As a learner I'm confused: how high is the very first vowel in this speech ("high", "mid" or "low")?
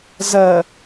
mid